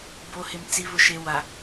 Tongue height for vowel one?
mid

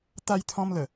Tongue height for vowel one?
low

